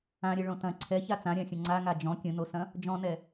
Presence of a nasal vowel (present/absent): present